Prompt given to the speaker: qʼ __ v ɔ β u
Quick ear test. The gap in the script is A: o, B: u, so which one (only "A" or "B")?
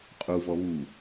B